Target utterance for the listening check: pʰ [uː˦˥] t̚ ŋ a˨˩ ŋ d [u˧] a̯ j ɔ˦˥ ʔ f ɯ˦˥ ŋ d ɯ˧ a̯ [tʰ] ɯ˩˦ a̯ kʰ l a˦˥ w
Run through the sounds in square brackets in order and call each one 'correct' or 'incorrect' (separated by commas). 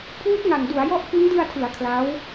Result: correct, incorrect, correct